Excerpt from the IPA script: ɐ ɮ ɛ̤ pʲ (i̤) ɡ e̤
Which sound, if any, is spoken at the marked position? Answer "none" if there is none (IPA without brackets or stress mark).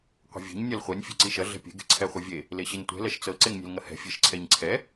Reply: e̤